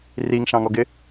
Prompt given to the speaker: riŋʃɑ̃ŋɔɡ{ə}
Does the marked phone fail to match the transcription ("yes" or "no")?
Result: yes